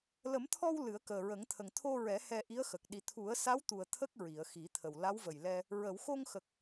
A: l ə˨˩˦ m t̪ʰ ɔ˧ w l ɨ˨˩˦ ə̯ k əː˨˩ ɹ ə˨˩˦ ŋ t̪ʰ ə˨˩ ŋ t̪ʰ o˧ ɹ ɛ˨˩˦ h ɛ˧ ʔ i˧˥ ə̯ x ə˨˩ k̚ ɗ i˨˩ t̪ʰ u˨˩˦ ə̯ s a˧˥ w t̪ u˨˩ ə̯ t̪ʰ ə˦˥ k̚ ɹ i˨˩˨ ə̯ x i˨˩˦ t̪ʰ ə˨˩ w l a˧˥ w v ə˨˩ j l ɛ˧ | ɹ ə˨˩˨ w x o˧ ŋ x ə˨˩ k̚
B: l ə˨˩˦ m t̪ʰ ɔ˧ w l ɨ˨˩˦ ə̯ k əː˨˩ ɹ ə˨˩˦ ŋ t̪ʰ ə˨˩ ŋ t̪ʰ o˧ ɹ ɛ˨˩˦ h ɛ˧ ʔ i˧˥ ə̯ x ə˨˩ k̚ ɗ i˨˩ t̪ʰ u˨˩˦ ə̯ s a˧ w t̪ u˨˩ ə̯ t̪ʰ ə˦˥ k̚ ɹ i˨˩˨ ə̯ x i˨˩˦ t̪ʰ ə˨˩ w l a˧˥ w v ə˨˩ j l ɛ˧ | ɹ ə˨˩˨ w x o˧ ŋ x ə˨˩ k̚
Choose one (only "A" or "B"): A